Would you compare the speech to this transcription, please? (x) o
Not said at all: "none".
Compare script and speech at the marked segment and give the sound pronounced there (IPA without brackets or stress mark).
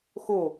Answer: x